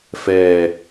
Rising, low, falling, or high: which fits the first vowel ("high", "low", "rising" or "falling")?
low